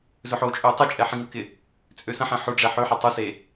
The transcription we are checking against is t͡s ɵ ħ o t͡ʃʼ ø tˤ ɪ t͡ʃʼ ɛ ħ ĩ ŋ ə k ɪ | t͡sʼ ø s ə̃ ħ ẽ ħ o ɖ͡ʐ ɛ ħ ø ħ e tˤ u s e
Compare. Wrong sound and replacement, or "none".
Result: t͡s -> z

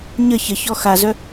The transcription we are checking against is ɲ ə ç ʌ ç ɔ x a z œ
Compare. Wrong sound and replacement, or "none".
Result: ʌ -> ə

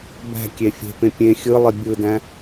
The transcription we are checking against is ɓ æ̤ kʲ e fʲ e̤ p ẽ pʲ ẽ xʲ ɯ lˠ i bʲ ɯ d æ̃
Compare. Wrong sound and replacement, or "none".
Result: ɓ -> b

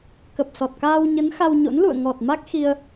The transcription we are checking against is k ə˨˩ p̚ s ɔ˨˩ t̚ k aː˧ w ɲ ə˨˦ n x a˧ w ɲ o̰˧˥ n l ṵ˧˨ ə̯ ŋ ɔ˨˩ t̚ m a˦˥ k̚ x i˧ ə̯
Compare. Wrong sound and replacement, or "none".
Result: none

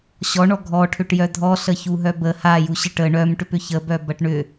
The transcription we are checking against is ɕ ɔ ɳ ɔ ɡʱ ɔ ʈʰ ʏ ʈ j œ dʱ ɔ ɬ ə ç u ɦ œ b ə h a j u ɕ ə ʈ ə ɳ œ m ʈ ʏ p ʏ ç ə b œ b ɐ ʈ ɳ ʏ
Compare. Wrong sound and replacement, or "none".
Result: none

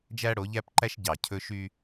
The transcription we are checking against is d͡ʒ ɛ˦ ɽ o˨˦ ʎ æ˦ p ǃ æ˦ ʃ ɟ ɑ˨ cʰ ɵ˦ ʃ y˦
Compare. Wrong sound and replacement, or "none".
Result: ɛ˦ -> æ˦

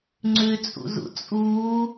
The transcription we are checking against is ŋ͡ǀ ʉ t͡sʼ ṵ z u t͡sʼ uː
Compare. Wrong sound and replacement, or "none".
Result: u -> ṵ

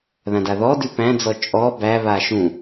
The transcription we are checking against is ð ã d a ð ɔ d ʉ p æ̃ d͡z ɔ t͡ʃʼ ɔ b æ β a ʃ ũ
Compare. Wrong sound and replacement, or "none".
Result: none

